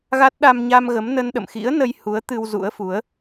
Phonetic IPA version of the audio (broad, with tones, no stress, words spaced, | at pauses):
ɣa˦˥t̚ ɗa˧mɲa˧mɣə˨˦mnə˧n ɗə̰˧˨mxḭ˧˥ə̯ nə˧jhu˨˦ə̯ t̪ɨ˧wzṵ˧˥ə̯fu˨˦ə̯